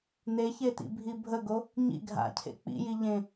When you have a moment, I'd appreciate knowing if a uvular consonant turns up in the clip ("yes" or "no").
no